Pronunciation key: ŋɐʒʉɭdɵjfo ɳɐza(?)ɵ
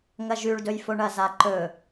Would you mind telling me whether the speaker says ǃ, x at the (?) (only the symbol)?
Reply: ǃ